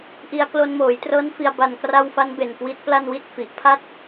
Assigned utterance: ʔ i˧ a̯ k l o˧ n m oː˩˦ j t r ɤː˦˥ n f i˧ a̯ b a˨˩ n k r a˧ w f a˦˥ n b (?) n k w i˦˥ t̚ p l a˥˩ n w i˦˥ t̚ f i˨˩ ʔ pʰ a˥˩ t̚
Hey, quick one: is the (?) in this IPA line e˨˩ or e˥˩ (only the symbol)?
e˨˩